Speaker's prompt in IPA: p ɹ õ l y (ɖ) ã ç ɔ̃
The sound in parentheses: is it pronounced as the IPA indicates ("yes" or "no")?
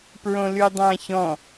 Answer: no